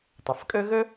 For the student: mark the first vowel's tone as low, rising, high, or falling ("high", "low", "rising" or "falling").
low